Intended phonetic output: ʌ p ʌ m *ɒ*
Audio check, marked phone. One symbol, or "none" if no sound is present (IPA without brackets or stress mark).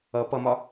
ɒ